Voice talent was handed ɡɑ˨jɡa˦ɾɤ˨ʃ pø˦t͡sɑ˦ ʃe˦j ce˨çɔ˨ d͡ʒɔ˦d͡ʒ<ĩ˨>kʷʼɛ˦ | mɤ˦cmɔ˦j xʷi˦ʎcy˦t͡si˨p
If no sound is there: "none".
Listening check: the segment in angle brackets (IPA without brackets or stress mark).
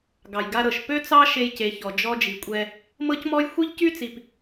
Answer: i˨